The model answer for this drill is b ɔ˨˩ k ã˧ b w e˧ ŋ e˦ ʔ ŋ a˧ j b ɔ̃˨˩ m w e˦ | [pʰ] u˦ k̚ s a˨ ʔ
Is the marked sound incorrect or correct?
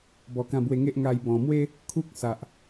incorrect